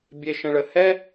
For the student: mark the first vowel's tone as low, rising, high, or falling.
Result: high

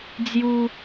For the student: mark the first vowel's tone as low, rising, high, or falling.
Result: high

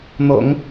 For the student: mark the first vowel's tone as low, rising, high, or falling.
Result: low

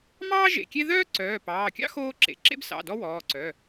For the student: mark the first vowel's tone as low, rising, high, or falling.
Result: high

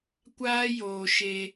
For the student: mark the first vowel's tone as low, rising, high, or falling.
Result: high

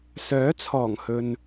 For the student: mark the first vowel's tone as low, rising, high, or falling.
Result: rising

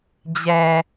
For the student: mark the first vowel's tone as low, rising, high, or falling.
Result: low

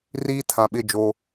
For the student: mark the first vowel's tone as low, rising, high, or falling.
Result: high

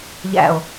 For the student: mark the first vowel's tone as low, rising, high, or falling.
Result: low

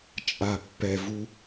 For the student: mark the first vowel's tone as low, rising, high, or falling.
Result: low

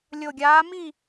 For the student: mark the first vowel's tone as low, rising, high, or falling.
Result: low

